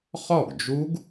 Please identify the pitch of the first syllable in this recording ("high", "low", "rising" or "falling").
falling